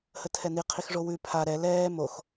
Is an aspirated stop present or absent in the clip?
present